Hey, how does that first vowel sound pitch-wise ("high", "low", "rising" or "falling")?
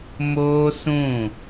high